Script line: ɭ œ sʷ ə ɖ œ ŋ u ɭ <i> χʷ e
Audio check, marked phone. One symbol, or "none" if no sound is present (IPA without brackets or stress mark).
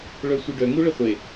ɪ